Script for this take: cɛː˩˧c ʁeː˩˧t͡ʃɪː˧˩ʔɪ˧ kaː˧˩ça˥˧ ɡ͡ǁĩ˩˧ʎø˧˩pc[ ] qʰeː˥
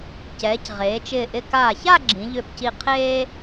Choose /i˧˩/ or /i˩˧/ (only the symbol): i˧˩